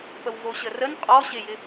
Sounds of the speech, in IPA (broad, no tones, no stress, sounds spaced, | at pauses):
p ə w v o ɕ ə r ə n qʼ ɔ ɕ ɪ j ɪ